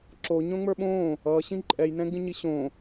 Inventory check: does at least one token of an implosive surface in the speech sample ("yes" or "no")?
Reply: yes